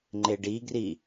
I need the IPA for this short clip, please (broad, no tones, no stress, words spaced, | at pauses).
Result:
ŋ͡ǃeɖiɡri